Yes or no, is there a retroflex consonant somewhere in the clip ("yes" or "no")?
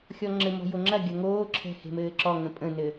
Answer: no